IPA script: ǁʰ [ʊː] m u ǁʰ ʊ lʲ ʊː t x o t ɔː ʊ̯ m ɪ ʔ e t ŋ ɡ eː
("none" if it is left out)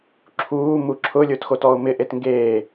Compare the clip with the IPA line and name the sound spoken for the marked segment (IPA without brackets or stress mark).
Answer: uː